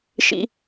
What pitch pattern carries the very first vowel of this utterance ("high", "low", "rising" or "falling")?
high